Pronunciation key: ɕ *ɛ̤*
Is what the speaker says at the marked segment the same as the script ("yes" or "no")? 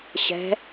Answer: yes